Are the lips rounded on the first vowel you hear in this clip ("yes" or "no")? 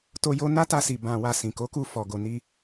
yes